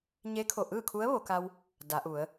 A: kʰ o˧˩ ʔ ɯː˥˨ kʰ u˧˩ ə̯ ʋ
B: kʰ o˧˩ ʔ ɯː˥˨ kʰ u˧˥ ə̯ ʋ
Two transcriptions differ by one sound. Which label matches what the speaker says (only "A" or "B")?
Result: B